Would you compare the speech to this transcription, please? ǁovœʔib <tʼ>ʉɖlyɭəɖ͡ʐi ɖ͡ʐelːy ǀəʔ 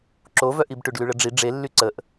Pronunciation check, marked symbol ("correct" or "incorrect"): incorrect